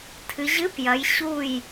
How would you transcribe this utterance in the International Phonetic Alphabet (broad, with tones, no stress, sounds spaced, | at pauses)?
tʰ ɨ˩˧ ʑ ɨ˧˥˧ p j ɐ˩˧ j ɕ u˧˩ j